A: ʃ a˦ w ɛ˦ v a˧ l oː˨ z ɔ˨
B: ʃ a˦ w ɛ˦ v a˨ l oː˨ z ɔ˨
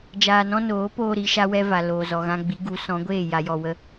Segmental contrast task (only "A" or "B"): B